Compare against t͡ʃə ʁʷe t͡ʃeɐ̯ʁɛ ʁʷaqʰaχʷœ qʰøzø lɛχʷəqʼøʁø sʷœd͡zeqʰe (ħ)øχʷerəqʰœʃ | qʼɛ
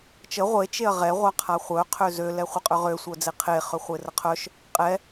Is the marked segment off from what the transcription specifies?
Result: yes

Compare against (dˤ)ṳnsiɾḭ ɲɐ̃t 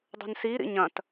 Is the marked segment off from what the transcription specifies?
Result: no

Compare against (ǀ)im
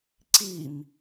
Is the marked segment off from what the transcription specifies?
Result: no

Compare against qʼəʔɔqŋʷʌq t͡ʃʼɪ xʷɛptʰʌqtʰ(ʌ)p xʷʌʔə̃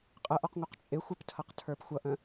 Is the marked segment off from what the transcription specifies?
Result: yes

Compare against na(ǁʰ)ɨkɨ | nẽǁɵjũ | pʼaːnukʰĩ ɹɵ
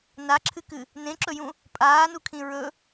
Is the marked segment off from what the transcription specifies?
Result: no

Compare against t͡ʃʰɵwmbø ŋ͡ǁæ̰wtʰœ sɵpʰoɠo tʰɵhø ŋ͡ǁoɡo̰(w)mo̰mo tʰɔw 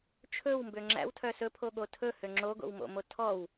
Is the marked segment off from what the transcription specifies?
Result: no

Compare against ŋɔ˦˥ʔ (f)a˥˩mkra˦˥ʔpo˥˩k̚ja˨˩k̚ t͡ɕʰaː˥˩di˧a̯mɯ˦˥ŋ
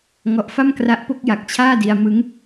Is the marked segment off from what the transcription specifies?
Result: no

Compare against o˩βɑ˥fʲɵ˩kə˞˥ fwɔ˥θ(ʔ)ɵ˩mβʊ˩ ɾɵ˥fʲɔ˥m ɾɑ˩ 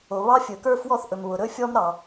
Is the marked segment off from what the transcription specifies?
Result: no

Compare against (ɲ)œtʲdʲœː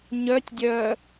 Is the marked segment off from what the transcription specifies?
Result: no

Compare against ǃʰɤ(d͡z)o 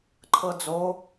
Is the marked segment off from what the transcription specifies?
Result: no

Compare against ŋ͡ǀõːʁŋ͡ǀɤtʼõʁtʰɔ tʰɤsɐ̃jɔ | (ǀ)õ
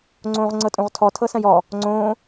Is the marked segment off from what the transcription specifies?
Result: yes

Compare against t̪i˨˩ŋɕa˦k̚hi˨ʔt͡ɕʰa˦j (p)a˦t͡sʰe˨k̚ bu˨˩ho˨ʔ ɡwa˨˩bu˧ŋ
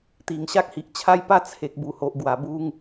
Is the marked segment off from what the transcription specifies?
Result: no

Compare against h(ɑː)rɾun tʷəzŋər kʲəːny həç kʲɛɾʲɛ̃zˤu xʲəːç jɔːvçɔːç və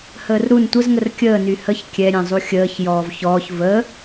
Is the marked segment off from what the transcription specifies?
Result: yes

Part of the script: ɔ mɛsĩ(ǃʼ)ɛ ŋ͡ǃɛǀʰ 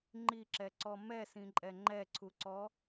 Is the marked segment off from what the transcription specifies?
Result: no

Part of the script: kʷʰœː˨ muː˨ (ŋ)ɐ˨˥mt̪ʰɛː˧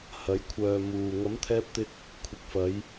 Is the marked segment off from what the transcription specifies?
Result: no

